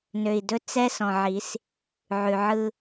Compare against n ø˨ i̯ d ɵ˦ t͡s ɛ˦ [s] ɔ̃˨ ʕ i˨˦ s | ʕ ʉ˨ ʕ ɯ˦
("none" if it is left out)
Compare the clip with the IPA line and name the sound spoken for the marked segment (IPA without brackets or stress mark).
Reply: s